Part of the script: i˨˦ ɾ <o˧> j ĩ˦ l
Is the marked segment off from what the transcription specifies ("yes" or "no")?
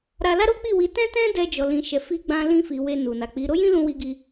yes